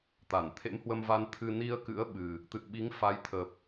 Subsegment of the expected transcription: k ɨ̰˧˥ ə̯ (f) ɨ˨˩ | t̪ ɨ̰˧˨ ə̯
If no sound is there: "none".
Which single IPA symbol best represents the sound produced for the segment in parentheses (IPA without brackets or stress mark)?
ɓ